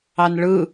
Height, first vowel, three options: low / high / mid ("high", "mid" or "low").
low